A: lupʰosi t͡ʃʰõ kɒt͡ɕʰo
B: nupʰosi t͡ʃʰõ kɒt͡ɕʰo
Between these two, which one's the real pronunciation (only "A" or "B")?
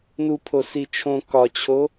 B